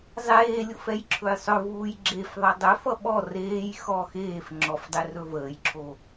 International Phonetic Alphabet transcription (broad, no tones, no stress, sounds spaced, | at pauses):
zˤ eː lʲ o f ɛ j ǁʰ ɵ j sˤ ɵ v uː j ɡ͡ǁ e f ðˤ ʌ dˤ ɵ f ʌ ɓ ɔ r eː j x ɔ x eː f ŋ͡ǁ ɔ f dˤ e r ɵ v əː j ǁʰ o